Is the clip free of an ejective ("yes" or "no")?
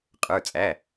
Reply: no